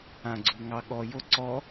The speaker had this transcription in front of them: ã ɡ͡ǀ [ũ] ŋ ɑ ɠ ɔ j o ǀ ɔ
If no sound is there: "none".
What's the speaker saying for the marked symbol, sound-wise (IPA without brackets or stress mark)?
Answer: u